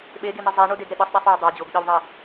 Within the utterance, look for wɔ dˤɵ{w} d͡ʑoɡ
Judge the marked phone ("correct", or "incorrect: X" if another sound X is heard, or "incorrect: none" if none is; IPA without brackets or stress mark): correct